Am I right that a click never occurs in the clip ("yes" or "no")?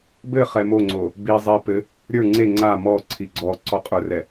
no